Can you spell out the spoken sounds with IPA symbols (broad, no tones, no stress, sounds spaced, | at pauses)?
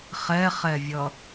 χ ɛ χ ɛ vʲ ʌ